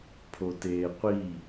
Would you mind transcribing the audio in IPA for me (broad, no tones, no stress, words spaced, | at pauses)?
pʰoteːqʷi